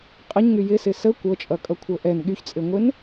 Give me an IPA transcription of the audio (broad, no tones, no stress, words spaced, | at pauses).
qʼəɲŋy jɪsɪ sə kʷɤt͡ʃʼʌkʼʌkʷʰɤ ʔɛn ɠyçt͡sʼɪŋʷɪn